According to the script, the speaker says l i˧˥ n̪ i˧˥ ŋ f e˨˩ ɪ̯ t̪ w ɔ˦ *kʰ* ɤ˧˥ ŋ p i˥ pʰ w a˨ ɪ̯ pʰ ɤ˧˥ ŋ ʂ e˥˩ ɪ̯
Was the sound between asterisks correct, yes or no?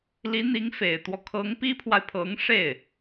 yes